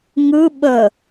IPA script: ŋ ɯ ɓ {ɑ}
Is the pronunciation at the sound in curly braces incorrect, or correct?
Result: incorrect